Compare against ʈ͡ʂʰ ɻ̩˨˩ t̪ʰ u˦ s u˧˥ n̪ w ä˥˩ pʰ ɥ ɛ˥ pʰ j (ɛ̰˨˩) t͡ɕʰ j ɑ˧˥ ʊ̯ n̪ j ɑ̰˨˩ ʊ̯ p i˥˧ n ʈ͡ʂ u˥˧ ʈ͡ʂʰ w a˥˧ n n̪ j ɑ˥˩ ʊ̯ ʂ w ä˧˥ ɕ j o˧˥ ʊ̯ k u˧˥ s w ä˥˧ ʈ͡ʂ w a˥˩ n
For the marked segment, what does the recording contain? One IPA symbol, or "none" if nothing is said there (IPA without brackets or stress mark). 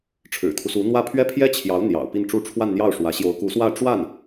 ɛ˥